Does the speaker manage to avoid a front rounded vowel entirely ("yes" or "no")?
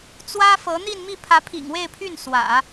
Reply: no